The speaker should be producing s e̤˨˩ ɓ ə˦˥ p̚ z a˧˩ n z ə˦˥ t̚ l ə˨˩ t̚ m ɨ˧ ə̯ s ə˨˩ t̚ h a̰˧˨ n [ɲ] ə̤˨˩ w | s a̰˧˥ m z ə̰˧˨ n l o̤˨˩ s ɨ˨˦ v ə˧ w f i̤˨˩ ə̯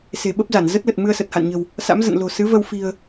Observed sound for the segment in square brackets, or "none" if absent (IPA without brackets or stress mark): ɲ